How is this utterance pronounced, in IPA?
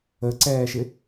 ə ǀ ɛː ʃ ɪ

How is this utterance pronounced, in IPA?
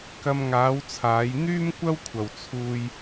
k ɐ˧ m ŋ aː˨˧ w t͡sʰ aː˨˧ j n̪ yː˥ m kʷ ɐ˥ w kʷʰ ɐ˨ w t͡sʰ uː˧ j

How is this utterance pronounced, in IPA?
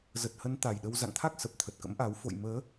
z ə˨˩ t̚ h ə˨˦ n t̪ a˨˩ j ɗ ə˧ w z a̰˧˨ ŋ t̪ʰ a˦˥ k̚ s ə˨˩ p̚ t̪ʰ ə˨˩ t̚ k ə̰˧˥ m ʔ a˨˦ w f o̰˧˨ j m əː˨˦

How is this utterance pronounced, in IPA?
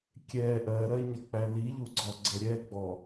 kʲ ɛ ʔ ɜ ɾ ɜ ɲ ʌ k͡p æ l i ʎ u ɡ͡ǀ ɔ ɡ͡ǀ ə ɾʲ ɛ ɡ͡b ɔ

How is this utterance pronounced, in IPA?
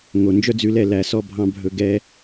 ŋ o˨ n d͡ʒ œ˦ d͡z ʉ˧ l ɛ˦˨ l æ˨ s ɔ˧ bʱ ɑ̃˧ bʱ ɵ˨ ɡ ɛ˧

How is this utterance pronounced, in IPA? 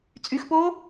t͡sʼ y x p oː

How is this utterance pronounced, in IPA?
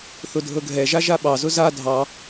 θ ʊ dʱ ɤ ɡʱ ɛ ʒ a ʒ a ɓ ɑ z ʊ z a dʱ ɑ

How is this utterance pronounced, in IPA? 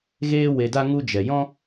ɣ eː˧ w e˨ d a˧ ŋ u˧ d͡ʒ ɛ˨ j ɔ̃˦

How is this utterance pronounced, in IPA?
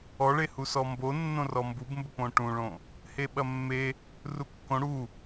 ɔ ɭ e h u s ɔ m b o nː õ r ɔ m b u b m b ə p õ ʈ ũ ɭ õ | h e ɓ ɐ mː e | r u kː õ ɽ u

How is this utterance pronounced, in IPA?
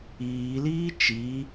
iː l iː t͡ʃ i

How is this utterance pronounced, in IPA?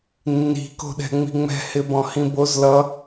nː i̤ k o̤ ɗ ɛ̤ ŋ͡m i̤ ŋ͡m ɛ̤ h ɪ b ɔ̃ h ĩ b o z l ʌ

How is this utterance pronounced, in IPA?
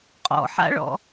qʼ ɔ̰ ħ a̰ ɭ ɔ̰

